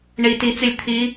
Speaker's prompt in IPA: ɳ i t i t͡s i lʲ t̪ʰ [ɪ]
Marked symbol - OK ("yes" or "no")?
no